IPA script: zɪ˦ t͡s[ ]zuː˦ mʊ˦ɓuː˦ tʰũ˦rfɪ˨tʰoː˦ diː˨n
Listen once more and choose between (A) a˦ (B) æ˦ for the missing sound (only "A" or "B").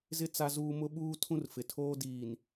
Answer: A